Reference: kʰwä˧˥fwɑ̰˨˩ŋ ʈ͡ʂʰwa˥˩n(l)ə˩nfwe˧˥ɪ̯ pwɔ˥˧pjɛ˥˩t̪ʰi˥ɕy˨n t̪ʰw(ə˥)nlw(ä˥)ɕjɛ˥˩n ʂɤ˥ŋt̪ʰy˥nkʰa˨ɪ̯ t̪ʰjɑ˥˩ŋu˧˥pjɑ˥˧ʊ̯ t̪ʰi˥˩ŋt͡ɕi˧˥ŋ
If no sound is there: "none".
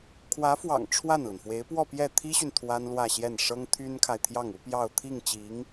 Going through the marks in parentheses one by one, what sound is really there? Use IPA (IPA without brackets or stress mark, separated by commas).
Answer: l, a˥, ä˥˧